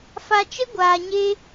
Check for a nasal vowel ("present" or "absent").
absent